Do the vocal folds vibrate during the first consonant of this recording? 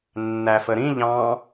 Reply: yes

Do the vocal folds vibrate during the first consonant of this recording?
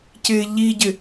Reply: no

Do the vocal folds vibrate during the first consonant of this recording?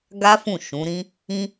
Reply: yes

